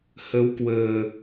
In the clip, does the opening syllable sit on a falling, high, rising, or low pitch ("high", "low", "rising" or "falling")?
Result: rising